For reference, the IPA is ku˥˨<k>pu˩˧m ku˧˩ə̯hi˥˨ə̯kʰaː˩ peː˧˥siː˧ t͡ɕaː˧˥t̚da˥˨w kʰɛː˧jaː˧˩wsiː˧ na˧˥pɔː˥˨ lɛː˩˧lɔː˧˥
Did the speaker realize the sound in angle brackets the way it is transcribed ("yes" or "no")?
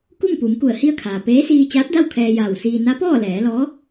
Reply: no